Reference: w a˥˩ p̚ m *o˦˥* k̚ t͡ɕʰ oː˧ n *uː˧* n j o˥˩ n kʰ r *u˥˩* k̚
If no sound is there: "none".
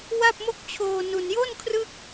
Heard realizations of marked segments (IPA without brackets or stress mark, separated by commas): o˥˩, u˧, ɯ˥˩